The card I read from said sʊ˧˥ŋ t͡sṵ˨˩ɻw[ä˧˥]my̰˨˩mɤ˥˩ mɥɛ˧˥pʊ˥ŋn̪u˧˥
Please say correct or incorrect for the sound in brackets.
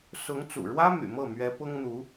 incorrect